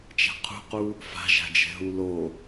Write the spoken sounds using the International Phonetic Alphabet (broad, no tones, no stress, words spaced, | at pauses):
t͡ʃa̤qʰṳqu | fa̤ʒa̤d͡ʒɛ̤ɦu lo